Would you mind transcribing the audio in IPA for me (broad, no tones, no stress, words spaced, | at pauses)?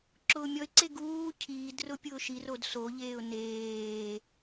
ǁʊːmʲɔɪ̯ǀe ɡuː cʰiːd rʊpʲʊːʃirod soʎeːʊ̯ neː